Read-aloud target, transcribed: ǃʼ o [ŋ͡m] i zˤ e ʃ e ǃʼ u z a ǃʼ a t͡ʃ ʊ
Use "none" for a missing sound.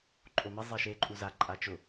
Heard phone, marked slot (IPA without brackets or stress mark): m